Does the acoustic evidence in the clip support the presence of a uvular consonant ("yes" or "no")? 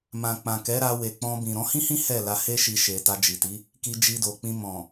no